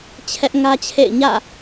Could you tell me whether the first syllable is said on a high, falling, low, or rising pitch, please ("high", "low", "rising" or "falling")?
high